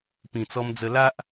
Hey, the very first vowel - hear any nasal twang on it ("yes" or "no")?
yes